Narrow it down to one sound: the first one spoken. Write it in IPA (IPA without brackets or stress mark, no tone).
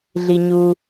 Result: ɮ